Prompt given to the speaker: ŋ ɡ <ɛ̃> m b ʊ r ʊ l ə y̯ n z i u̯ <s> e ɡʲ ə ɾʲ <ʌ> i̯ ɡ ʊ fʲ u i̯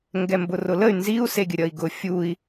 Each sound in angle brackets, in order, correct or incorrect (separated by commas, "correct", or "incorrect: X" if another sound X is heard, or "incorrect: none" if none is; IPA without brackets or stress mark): incorrect: ɛ, correct, correct